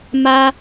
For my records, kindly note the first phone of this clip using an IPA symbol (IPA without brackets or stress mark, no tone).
m